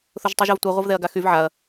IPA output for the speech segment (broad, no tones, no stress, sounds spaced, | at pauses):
θ ʊ ʒ tˤ y ʒ a v tʷ i ʁʷ ɐ v ð ɛ ɐ̯ ɡ a x y v ʕ a ɐ̯